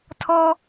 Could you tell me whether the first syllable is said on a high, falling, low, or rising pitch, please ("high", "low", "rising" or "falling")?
high